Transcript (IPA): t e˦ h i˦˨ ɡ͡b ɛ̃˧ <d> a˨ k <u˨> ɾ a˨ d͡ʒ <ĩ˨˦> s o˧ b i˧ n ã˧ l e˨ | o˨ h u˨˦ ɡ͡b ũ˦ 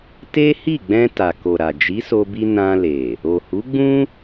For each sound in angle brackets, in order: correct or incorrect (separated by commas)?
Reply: incorrect, incorrect, incorrect